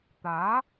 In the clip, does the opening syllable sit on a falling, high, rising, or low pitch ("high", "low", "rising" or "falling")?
rising